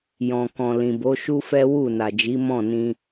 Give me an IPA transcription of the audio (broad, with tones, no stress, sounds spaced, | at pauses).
j ɔ̃˨ k ɔ̃˨ l ĩ˨ b o˨˦ ʃ u˦ f ɛ˦ w u˦˨ n a˨ d͡ʒ i˨˦ m ɔ̃˦˨ n ĩ˧